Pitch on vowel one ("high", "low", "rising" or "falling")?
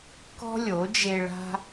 high